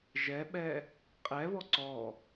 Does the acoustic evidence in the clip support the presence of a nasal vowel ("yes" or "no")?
no